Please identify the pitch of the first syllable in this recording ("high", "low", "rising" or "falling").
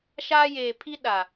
high